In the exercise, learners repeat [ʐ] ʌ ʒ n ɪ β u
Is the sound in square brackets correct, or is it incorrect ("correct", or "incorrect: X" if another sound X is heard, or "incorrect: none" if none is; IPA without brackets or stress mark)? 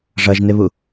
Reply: correct